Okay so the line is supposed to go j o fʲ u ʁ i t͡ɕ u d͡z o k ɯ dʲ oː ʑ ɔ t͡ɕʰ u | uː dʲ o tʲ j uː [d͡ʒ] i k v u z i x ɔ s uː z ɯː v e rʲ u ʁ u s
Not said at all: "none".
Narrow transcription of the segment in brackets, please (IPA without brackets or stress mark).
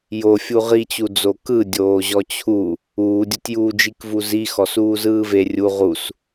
d͡ʒ